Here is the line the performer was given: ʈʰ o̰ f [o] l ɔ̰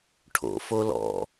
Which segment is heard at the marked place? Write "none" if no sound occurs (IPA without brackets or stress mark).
o